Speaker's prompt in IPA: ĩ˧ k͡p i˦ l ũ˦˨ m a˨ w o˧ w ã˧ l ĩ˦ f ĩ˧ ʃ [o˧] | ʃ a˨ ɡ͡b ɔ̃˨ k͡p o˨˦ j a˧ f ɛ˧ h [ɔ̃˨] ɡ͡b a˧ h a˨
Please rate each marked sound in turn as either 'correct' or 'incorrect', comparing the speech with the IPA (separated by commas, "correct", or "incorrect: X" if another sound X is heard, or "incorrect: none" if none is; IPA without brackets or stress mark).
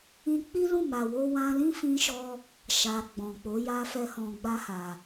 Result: incorrect: ɔ˧, correct